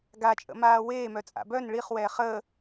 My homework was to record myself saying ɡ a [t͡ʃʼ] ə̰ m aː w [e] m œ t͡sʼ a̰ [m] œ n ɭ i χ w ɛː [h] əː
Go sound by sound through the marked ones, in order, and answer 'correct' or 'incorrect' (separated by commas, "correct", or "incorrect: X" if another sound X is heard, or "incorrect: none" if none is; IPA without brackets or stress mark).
correct, incorrect: eː, incorrect: b, incorrect: χ